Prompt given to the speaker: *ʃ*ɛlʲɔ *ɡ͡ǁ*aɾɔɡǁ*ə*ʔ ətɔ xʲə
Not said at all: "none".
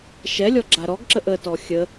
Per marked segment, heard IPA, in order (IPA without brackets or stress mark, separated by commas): ʃ, ɡ͡ǁ, ə